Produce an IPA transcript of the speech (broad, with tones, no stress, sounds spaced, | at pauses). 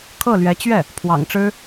kʰ ɤ˥˩ l ɥ ɛ˧˥ t͡ɕ ɥ ɛ˥˩ | pʰ w ɑ̰˨˩ ŋ ʈ͡ʂ ɻ̩˥